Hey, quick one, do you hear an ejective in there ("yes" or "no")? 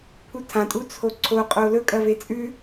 yes